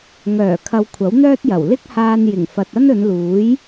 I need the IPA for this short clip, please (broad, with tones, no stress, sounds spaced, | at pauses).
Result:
ŋ œː˨˩ kʰ ɐ˧ w kʷʰ ɐ˨˥ w n̪ œː˥ t̚ j ɐ˨˩ w l ɪ˥ k̚ h aː˧ n j ɪ˨˩ ŋ f ɐ˨ t̚ ɐ˥ n ɵ˨˧ n l uː˨˥ j